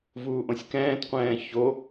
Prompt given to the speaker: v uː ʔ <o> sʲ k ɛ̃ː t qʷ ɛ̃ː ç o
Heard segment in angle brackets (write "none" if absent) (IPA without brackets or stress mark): õ